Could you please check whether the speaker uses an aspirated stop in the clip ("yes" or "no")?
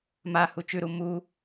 no